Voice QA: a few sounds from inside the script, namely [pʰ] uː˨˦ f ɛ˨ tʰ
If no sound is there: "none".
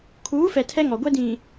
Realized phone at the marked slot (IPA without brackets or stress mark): kʰ